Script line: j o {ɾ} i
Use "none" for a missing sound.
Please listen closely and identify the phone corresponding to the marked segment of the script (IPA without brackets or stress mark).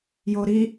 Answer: ɾ